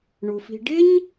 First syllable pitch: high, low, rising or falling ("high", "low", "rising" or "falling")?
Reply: low